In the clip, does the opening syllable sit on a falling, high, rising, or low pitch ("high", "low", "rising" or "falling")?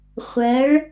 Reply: rising